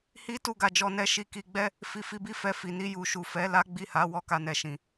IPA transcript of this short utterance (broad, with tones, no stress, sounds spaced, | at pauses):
h i˦ t u˦˨ ɡ a˧ d͡ʒ ɔ˦ n ɛ˧ ʃ i˧ k i˧ ɡ͡b ɛ˦ | f i˧ f i˧ b i˦ f ɛ˧ f i˨ n i˧ j u˨ ʃ u˨ f ɛ˨˦ l a˦ ɡ͡b i˦˨ h a˨˦ w ɔ˦˨ k a˧ n ɛ˨ ʃ ĩ˨